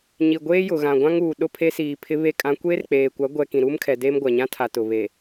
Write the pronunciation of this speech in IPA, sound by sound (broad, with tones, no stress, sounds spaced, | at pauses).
ɲ i˨ ɡʷ eː˦ j ʊ˨ ɣ ã˨ ɡʷ ã˦ ŋ uː˨ ɗ ʊ˦˨ pʰ e˦ s iː˨ pʰ ɪ˦ β e˦˨ kʼ ã˦ kʷ eː˦ r k͡p eː˨ kʷ a˨˦ ɡʷ ɛ˦ k ĩ˨ ɾ uː˦ m kʰ ɛ˨ d eː˦ m ɡʷ a˨ ɲ ã˦ tʰ a˨ t ʊ˨ β e˨